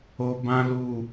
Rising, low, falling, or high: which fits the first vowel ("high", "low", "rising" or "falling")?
high